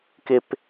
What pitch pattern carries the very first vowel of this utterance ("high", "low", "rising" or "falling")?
high